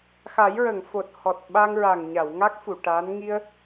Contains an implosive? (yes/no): yes